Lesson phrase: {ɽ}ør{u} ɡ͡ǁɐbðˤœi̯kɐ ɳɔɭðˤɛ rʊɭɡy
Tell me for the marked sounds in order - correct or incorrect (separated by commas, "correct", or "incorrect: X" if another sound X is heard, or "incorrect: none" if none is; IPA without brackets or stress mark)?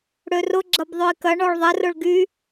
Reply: correct, incorrect: ʊ